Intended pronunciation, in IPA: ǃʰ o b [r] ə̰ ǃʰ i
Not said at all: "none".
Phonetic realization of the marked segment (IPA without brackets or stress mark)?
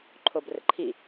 r